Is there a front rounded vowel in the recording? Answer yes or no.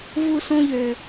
yes